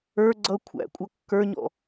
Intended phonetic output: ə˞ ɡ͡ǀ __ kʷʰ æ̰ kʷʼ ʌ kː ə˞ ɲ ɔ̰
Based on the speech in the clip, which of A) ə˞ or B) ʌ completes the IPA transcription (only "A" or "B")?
B